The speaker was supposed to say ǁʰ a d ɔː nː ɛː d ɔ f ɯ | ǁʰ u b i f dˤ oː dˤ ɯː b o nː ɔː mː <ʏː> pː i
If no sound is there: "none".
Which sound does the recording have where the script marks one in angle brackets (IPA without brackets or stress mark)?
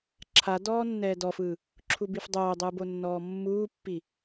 uː